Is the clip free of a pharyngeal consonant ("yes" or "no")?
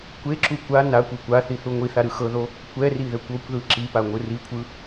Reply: yes